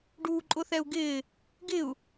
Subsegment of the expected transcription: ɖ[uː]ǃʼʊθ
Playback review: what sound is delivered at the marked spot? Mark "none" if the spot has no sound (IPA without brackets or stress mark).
uː